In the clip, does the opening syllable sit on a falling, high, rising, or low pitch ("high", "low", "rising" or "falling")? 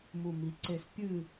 low